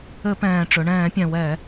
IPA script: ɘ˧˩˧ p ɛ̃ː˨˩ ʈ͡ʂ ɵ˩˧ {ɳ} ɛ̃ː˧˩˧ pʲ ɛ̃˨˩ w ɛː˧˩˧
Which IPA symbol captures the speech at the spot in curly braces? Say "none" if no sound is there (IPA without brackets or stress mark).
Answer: ɳ